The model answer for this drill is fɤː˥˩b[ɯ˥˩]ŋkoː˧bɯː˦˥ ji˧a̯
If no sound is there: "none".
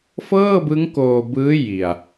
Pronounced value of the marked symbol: ɯ˦˥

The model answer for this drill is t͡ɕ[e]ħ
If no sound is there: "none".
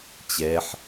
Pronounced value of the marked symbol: ɛ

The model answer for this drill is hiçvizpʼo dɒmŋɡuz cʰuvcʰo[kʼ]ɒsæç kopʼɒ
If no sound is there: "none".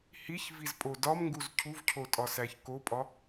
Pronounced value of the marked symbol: tʼ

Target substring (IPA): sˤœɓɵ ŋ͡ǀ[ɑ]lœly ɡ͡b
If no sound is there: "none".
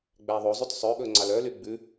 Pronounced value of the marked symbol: ɑ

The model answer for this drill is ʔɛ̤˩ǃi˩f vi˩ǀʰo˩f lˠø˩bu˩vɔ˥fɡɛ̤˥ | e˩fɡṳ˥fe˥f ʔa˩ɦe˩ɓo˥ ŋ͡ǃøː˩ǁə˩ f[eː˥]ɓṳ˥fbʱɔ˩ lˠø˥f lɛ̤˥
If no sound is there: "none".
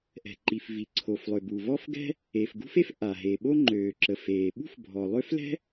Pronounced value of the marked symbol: eː˩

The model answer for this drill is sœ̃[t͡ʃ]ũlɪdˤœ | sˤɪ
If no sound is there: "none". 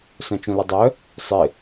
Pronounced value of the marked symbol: t͡ʃ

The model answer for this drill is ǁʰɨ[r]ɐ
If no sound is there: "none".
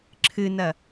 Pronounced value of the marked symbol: n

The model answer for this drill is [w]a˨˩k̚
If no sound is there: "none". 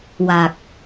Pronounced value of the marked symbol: w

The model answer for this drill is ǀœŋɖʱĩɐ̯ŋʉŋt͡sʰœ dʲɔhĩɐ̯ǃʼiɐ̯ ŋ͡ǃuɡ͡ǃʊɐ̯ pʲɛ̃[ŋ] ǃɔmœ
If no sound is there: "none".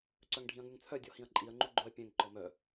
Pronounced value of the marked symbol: ŋ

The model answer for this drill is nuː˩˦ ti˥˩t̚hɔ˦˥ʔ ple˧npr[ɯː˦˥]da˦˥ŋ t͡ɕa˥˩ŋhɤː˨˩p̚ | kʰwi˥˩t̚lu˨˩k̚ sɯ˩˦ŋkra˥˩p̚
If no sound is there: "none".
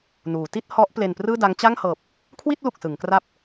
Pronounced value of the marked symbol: ɯː˥˩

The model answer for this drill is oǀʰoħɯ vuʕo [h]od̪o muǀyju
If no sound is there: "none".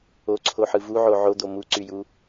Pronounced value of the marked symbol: ʕ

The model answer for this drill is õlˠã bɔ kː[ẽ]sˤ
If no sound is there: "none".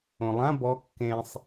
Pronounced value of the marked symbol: ẽ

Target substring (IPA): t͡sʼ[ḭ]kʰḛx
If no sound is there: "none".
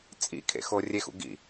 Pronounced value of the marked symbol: ḭ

